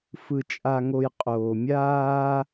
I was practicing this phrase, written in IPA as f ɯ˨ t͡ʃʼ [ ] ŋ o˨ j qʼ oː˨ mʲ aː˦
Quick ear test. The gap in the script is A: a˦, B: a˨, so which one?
B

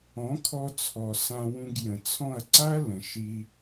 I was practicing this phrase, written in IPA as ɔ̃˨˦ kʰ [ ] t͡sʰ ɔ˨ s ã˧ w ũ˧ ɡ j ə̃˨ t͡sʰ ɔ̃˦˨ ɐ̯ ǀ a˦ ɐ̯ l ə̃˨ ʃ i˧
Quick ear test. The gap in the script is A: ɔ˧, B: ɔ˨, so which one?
A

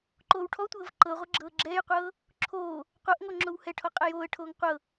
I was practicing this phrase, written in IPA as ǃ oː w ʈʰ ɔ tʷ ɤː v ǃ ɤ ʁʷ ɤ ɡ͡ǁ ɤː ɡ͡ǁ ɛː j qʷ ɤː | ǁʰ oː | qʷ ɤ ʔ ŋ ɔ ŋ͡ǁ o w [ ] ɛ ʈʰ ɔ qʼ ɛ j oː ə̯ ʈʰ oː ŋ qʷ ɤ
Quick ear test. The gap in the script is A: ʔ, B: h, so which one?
B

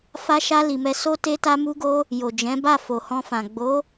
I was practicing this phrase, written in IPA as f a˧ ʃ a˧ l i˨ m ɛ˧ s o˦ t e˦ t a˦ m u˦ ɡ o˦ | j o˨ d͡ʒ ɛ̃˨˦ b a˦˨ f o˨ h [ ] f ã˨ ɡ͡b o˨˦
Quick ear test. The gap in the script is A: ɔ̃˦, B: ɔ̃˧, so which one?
B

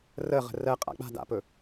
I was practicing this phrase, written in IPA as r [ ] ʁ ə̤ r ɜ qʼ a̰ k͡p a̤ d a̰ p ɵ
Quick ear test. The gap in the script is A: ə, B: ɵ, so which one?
A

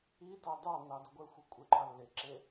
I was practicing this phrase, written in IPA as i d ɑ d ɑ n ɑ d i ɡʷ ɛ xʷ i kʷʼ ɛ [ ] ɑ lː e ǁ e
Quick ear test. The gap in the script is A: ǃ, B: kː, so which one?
A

